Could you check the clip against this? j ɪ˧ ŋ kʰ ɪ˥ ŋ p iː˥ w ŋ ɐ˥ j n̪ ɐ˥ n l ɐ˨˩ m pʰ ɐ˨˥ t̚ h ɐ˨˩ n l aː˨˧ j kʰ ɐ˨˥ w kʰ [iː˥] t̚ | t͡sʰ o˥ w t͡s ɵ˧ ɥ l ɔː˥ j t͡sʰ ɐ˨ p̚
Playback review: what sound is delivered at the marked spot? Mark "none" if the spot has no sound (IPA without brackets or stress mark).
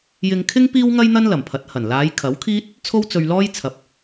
iː˥